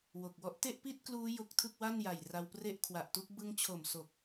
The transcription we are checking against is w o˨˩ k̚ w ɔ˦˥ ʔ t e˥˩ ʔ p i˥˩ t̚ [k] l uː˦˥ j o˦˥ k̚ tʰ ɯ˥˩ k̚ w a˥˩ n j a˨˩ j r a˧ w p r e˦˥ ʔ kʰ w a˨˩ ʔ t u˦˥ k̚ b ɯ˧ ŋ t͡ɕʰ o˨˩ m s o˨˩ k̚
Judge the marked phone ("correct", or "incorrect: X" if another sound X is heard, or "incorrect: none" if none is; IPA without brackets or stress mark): correct